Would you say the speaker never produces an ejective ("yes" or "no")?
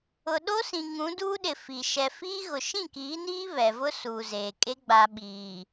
no